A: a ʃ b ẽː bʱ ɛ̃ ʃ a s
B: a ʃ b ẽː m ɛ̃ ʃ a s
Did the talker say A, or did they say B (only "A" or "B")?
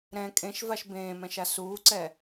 B